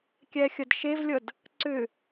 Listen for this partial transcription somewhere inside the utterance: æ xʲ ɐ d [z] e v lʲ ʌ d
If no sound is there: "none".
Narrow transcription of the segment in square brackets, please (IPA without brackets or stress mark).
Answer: ʃ